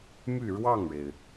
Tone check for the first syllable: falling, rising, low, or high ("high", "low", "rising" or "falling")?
falling